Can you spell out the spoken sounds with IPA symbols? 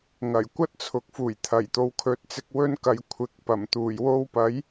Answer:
ŋ ɐ˨˩ j kʷ ɐ˥ t̚ t͡sʰ ʊ˨ k̚ f uː˨˩ j t̪ʰ ɐ˨˩ j t̪ o˨ w kʰ ɵ˨˥ t̚ t͡s ɪ˧ k̚ w ɵ˧ n k ɐ˨ j kʷʰ ɪ˨ k̚ p ɐ˨˩ m t̪ uː˨˩ j w o˧ w p ɐ˨˥ j

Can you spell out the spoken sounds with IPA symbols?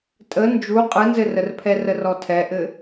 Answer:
tʼ ə n d͡ʒ u qʼ ɯ n z ɘ r ə r pʰ ɛ r ə r ɔ tʰ ɛ ʔ ɘ

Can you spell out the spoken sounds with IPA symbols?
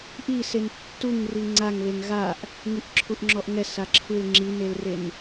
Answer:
ʔ i s e n tː u ŋ r i ŋ͡ǀ a ŋ β e ŋ ɣ a ʔ | ŋ i ʔ ǁʰ u ʔ ŋ͡ǁ ɔ ʔ ŋ ɛ s a ǁʰ ɯ l ŋ͡ǁ i n e l r e n

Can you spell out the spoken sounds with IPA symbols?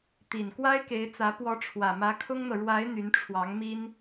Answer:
t̪ i˨˩ n k w a˥ ɪ̯ k e˧˥ ɪ̯ t͡s ä˧˥ p w ɔ˧˥ ʈ͡ʂʰ w ä˨˩ m ä˧˥ kʰ ʊ˥ ŋ n̪ ɤ˨ ɻ w a˧˥ ɪ̯ n̪ y˧˥ n ʈ͡ʂʰ w ɑ˧˥ ŋ m i˥ n

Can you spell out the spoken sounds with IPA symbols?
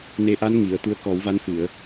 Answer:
n e˧ ʔ a˧˥ n ŋ i˨˩˨ ə̯ t̪ u˧˥ ə̯ k ɔ˨˩˦ w v a˧˥ n f ɨ˨˩˨ ə̯

